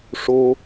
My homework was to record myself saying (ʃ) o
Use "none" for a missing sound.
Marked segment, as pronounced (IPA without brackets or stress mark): ʂ